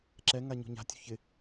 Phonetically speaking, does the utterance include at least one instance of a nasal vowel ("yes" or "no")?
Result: no